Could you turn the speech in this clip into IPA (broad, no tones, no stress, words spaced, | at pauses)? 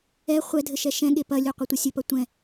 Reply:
ɛ χʷɛ dʱɘʃɛʃɛ̃ɠe pɐlʲu qʷɐtʷɐsʲɘpɐ tʷɛ̃